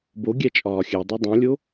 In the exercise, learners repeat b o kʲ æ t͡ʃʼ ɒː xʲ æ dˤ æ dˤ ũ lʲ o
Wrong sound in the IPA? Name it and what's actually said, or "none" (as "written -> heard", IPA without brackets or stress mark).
kʲ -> ɡʲ